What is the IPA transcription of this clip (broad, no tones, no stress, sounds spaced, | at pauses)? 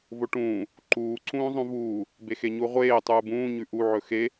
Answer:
v o ʈ ũː | ǃ uː ǀ ũː zˤ ũ v uː | b e x e ɲ u ʁʷ eː tˤ uː b ũː ɲ ʉ ʔ u ʕ ɵ x e